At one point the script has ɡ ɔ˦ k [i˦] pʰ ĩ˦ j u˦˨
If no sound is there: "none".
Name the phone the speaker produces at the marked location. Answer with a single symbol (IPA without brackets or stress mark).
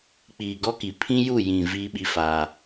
i˨